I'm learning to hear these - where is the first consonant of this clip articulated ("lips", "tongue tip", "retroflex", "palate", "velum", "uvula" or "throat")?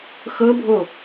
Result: velum